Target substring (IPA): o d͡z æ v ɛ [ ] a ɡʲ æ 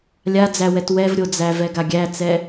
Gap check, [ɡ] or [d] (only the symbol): ɡ